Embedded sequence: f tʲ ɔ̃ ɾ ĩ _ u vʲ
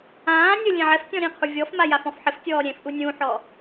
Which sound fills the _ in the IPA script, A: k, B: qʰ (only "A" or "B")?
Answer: B